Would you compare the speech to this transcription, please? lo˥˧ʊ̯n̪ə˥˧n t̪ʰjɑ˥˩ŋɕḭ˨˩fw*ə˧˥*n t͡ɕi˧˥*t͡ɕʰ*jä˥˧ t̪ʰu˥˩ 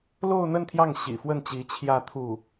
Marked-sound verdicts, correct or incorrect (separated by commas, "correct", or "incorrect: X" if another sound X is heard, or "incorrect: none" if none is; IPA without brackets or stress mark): incorrect: ə˥˩, correct